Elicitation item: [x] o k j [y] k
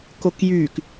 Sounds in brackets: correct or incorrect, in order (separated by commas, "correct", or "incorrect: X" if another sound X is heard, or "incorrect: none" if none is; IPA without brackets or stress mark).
incorrect: k, correct